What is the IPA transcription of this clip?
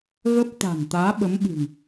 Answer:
ɣ ə˦˥ p̚ t̪ a̤˨˩ n t̪ aː˨˦ ɓ ə˨˦ m ɓ ɨ̤˨˩ ŋ

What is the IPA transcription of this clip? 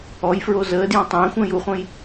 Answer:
ɔ j f ɹ o z əː d j ɔ̃ tˤ ə̃ː xʷ ə̃ː j u χʷ ə̃ː j

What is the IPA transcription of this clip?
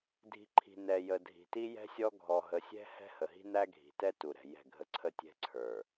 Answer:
dʱ i̤˨ ǃʰ i̤˨ n ɛ˨ j ə˨ dʱ i̤˨ t i˦ j ɛ̤˦ sʲ ɔ˦ ɡʱ ɔ˨ ɦ ə˨ sʲ ɛ̤˦ h ɛ̤˦ h ə˨ ɦ i̤˦ n æ˦ ɡʱ i̤˨ t ɛ˦ t u˨ ɾ ɛ̤˨ j ɛ̤˦˨ ɡʱ ə˦ ǀʰ ə˦ tʲ ɛ̤˦ ǀʰ ə˞˨

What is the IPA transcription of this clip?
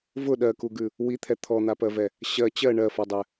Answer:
v ʊ ɗ ɜ k u ɡ ʉ | w i t̪ʰ ɛ t̪ʰ ɔ n̪ a p ɜ v ɛ | ɕ ɜ t͡ɕ ɜ ɳ ɜ f ɔ dˤ ɛ

